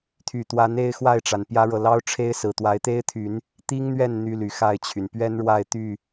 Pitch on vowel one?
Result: low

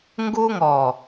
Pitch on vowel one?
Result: high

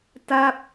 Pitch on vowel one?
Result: falling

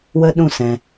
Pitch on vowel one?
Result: high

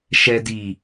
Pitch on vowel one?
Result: low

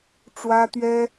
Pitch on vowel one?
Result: high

